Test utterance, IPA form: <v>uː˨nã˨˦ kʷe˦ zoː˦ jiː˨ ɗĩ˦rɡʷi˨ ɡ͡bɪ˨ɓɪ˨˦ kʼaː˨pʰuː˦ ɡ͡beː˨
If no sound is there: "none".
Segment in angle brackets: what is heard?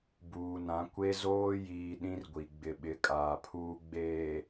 b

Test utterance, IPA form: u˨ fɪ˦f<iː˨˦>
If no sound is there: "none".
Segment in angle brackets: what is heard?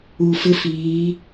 iː˨˦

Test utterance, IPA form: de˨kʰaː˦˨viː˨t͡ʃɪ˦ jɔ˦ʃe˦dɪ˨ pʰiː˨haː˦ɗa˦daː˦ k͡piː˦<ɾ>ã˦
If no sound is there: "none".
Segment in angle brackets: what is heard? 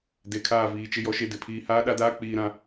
ɾ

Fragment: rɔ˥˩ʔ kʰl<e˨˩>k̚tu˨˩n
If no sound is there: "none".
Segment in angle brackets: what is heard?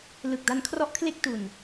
e˥˩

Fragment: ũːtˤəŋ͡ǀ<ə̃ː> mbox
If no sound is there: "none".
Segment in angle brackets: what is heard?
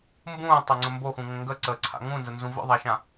ə̃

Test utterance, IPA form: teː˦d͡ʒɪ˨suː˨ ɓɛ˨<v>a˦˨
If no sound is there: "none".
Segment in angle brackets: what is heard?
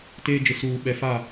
f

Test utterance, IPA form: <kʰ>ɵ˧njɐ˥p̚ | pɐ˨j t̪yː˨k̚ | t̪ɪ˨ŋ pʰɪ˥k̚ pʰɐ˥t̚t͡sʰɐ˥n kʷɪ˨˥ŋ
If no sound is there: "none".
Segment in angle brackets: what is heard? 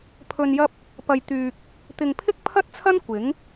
pʰ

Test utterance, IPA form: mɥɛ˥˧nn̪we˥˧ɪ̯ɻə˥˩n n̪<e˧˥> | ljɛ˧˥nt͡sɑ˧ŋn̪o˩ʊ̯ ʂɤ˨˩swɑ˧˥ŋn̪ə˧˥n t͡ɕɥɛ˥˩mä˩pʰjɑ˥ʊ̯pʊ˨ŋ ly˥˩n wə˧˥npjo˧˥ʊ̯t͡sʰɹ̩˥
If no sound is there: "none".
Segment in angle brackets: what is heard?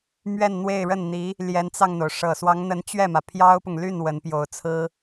i˧˥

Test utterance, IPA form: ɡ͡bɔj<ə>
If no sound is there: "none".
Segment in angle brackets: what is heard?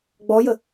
ə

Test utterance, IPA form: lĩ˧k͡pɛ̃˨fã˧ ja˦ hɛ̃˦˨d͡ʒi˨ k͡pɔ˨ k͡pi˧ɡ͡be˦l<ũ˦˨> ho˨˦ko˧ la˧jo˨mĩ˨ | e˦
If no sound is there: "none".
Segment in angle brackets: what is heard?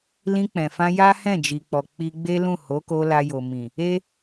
ũ˦˨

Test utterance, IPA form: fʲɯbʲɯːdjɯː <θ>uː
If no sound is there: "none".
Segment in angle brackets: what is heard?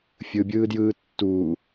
tː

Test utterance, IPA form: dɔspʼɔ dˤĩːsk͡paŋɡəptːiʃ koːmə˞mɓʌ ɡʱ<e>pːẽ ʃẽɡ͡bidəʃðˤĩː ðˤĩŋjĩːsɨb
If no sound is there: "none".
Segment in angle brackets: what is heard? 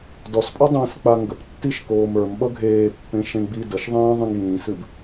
eː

